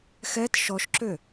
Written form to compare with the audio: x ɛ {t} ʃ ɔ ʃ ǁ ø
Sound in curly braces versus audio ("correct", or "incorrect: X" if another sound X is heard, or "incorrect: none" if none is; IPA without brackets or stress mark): correct